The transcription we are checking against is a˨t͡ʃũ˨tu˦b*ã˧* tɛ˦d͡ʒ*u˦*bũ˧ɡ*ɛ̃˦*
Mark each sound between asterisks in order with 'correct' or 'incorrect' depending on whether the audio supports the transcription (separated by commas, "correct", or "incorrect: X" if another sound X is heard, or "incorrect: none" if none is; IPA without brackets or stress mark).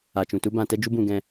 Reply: correct, correct, incorrect: ɛ̃˧